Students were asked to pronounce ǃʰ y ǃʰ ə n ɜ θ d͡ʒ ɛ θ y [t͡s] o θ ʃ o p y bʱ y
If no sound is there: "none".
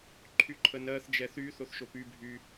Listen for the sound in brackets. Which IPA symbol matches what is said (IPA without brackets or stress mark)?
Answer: θ